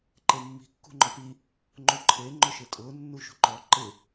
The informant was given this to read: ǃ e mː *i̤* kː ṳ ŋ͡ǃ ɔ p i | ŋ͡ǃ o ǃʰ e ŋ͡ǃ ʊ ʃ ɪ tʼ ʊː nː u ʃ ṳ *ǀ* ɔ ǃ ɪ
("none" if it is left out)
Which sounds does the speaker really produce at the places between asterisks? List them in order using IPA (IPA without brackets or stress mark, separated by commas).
i̤, ǃ